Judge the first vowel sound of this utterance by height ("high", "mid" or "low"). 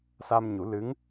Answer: low